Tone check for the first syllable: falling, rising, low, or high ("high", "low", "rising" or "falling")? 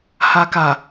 low